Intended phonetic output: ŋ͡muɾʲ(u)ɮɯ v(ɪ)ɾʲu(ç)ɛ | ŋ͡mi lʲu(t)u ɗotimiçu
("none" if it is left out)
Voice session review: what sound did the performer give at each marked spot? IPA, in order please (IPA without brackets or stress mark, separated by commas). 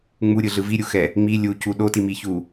ɯ, i, x, c